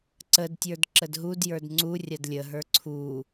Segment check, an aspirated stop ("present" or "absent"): present